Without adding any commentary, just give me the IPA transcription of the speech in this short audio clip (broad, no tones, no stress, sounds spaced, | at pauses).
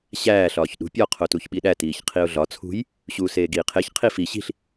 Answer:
ɕ æː ɬ ɒː ç ɗ ṳ pʲ ɒ qʰ o t u ç ɓ i ɗ æ t iː ç qʰ i ʊ̯ ɮ ɒ t͡sʰ ṳ j | ɕ uː s eː ɡ iː qʰ e ç qʰ i f i ɕ i̤ ɬ